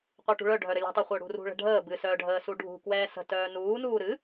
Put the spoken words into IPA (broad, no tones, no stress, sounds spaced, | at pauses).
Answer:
qʷ œ ʈ ṳ ɭ œ ɖʱ œ ɾ ə lʲ ə̤ tˤ ø χʷ œ ɽ ṳ r ṳ ɭ ə̤ ɖʱ əː b ɨ s œː ɖʱ əː s u ɖʱ ṳ k w ɛː s ə̤ t œː n uː n uː ɾ ɨ